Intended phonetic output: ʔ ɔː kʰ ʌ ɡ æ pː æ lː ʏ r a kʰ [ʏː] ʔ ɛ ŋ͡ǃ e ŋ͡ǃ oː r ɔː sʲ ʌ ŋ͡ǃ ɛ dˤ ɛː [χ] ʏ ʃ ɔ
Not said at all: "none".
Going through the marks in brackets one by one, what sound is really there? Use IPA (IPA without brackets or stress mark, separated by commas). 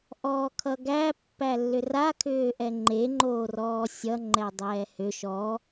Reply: ʏː, h